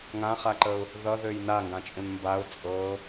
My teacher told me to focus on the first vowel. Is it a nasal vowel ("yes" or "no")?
yes